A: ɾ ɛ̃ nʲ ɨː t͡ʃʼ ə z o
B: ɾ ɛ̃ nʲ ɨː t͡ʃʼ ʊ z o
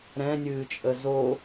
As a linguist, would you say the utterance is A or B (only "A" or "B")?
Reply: A